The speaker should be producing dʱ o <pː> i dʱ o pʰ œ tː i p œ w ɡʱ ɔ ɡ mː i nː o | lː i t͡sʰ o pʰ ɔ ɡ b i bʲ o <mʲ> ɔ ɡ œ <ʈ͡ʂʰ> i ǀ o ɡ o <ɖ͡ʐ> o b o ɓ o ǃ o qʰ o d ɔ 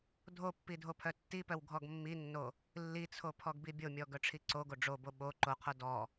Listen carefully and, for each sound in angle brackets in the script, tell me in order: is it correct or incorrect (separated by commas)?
correct, correct, correct, correct